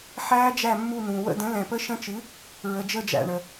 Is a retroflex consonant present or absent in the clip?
present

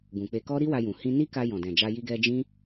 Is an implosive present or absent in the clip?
absent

